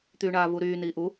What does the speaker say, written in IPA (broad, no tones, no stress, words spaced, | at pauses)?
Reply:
t̪yːɳaːvuɾyː niːʔu